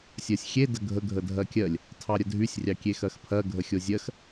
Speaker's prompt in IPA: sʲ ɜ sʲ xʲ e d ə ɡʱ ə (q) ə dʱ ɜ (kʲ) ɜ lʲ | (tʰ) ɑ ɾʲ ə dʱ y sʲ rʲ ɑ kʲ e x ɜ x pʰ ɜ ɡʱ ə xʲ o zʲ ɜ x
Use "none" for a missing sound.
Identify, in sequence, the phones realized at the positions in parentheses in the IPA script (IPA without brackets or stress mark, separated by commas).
ɡʱ, kʲ, tʰ